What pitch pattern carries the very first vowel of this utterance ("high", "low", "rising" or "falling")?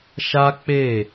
high